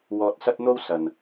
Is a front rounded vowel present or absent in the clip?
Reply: absent